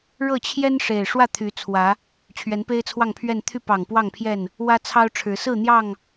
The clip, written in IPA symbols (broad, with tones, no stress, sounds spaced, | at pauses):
ɻ ɤ˥˨ t͡ɕʰ j ɛ˦ n ʂ e˨˩ ɪ̯ ʂ w ä˥˨ t̪ʰ y˨˦ t͡sʰ w ä˨˦ | t͡ɕʰ ɥ ɛ˨˦ n p e˦ ɪ̯ t͡sʰ w ɑ˥˨ ŋ pʰ ɥ ɛ˥˨ n t̪ʰ y˥˨ p ɑ˨˩ ŋ p w ɑ˥˨ ŋ pʰ j ɛ˥˨ n | w ä˦ t͡sʰ ɑ˦ ʊ̯ ʈ͡ʂʰ ɻ̩˨˦ s ɹ̩˥˨ n̪ j ɑ˥˨ ŋ